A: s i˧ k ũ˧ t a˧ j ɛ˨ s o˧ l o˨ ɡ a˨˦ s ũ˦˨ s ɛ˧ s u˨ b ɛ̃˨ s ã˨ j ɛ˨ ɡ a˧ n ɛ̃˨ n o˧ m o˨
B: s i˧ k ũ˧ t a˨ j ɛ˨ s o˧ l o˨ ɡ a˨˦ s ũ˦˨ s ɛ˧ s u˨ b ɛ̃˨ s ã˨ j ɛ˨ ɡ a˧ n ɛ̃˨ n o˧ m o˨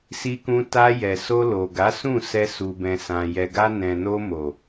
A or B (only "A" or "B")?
A